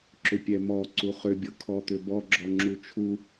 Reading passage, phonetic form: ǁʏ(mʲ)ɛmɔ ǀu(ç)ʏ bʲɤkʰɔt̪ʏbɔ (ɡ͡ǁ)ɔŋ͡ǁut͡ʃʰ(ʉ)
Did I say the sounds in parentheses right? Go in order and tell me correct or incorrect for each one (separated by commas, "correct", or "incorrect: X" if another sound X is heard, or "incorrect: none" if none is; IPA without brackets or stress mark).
incorrect: pʲ, incorrect: χ, correct, incorrect: u